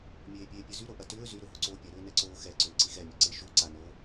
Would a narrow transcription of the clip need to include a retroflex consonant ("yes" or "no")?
no